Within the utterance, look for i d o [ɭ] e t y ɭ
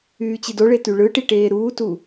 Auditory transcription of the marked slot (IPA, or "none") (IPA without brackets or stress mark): ɭ